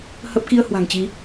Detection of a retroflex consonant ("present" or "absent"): absent